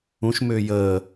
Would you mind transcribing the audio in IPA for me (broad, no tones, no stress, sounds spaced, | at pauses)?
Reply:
ũ ʃ m ʏː j əː